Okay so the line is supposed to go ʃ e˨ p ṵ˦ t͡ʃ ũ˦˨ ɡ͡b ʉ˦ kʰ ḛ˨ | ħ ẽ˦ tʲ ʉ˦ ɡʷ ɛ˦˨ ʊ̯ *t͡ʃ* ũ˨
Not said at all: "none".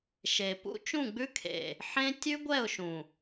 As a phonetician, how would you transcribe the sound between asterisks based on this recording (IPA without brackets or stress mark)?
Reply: ʃ